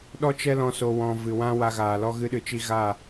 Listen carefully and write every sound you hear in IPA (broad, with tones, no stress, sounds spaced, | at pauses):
ɗ ɔ˦ t͡ʃ ɛ˦ l ɔ̃˧ s o˨ w ɔ̃˨ v ɨ˨ w ã˦ w a˧ ɣ aː˨ l ɔ˦ ɣ ɨ˦ ɗ ɨ˧ t͡ʃ i˦ ɣ a˦˨